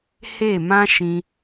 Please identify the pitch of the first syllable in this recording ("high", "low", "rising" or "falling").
falling